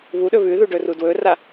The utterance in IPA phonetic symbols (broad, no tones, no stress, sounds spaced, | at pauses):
β u ɗ ɵ β ʉ ð u ɖ ɵ r u d w ɵ r a